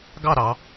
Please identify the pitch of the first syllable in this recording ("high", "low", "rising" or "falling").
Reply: falling